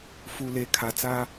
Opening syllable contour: low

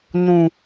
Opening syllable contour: low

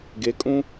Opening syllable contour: rising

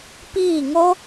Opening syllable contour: falling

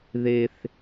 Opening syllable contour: high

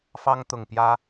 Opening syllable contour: high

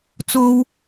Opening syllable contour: high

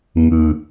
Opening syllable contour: low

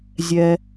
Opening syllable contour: low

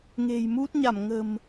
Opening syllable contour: low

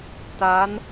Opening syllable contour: rising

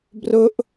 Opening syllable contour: high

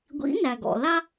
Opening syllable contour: rising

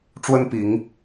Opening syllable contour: high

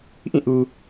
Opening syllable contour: falling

